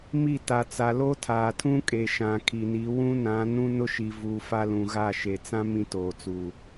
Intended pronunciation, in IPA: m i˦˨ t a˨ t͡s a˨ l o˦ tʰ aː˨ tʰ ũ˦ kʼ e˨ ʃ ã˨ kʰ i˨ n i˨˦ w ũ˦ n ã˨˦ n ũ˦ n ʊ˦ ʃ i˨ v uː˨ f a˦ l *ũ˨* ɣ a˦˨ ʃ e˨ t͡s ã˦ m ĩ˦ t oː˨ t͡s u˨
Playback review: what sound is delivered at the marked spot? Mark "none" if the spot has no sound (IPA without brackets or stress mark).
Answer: ũ˨